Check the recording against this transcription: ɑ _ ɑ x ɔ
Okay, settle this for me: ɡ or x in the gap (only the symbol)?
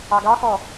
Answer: ɡ